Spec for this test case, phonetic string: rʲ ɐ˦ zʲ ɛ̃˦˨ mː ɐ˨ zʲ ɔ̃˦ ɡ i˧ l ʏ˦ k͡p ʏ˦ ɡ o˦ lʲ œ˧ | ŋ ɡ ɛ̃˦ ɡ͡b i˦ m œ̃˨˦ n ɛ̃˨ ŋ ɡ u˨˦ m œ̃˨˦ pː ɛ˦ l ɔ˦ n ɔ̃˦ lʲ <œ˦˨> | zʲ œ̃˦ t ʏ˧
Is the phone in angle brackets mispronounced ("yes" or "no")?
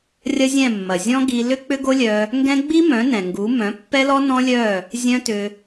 no